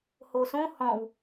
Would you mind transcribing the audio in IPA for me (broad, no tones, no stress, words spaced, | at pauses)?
hosõ hɔ̃w